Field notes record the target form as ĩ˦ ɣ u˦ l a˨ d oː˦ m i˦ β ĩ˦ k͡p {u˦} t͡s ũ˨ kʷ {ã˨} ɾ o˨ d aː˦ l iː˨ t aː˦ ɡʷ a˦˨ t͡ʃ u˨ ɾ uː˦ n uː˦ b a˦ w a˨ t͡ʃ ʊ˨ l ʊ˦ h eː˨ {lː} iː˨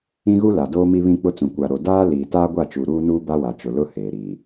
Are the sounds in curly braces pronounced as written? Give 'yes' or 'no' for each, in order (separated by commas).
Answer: no, no, no